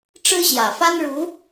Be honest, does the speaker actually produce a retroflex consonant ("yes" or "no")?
yes